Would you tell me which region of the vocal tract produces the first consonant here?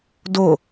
tongue tip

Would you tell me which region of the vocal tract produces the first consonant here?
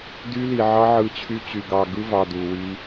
tongue tip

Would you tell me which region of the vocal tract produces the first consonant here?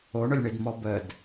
retroflex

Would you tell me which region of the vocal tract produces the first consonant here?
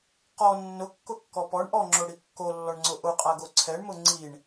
uvula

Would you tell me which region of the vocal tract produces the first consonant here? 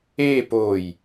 lips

